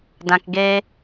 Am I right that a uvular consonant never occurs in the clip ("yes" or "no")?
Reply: yes